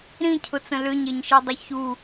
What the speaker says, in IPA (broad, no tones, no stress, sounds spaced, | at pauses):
ɾ ĩ cʰ ʊ t͡s ə̃ l ʏ ɲ e ɲ ʃ i dˤ ə ç u